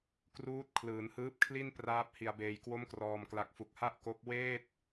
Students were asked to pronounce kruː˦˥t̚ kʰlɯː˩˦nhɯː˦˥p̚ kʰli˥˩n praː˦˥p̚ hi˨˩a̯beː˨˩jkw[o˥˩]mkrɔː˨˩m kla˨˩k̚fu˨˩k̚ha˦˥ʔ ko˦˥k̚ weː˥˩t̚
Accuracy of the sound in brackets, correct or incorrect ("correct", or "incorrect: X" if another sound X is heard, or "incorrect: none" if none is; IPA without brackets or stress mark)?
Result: incorrect: o˦˥